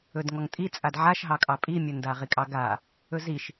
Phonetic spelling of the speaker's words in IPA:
ɵdŋɔŋtʼit͡sʼad ʕaʃɦɑkʼɑ pʼimʲɵnda ʁikʼɑɡa | ɵziʃ

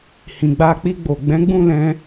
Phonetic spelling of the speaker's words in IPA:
hĩ˨ɡ͡ba˧k͡pi˧ɡ͡bo˨ ɡ͡bɛ̃˨˦ɡ͡bũ˦˨ lɛ̃˧

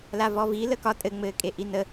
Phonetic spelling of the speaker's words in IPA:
lavɔvi ləkɒ tʼɘ ŋ͡mɘːkʼeʔinə

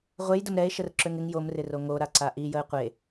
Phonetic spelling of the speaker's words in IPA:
ʁʷejdəm ɾɛe̯ʃərǁøŋ ɪŋ jomrɪro ŋoɾaǀa ʔijəe̯ qʷe

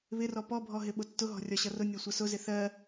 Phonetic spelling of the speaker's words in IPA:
βɪrɔ pɔbʱɔɦɪ ɓʊtːʊɦɔ̤ rʲɒɕʌrʊ nʲɔsʷʌsʊzɪ θɜ

